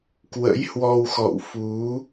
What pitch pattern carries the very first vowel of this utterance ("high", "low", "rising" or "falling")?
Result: rising